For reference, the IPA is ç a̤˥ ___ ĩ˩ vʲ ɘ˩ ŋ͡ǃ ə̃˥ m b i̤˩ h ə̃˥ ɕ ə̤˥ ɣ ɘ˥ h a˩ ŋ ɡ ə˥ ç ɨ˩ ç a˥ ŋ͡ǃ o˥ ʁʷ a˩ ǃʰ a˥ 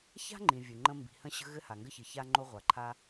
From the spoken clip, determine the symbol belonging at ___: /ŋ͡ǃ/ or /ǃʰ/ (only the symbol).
ŋ͡ǃ